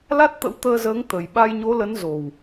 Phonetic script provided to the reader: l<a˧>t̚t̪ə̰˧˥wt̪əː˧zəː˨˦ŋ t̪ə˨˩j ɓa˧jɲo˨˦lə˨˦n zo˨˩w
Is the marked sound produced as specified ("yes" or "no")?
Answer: no